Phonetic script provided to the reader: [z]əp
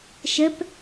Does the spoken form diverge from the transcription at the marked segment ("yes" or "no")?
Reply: yes